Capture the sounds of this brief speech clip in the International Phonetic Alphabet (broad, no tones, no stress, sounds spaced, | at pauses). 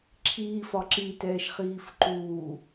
ǁʰ iː f ɒ ǁ i t ɛː ʃ χ iː f ǃ uː